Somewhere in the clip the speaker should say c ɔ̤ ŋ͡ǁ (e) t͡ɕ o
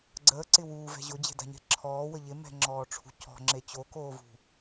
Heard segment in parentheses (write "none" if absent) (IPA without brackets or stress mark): e